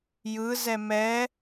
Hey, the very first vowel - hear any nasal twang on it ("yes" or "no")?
no